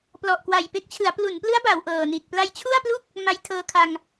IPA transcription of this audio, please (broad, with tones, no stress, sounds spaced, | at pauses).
p l ɔ˨˩ ʔ k w a˨˩ j p e˦˥ k̚ t͡ɕʰ ɯ˩˦ a̯ p l u˩˦ n p l ɯ˦˥ a̯ b a˩˦ w ʔ ɤː˨˩ n i˨˩ t̚ p l a˧ j t͡ɕʰ u˥˩ a̯ p l u˥˩ k̚ | m a˦˥ j tʰ ɤː˧ kʰ a˧ ŋ